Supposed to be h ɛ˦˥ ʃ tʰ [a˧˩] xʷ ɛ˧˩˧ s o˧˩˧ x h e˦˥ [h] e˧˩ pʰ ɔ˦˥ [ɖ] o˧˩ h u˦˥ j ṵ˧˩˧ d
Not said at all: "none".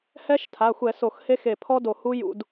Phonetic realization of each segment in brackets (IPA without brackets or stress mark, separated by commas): a˩˧˩, x, d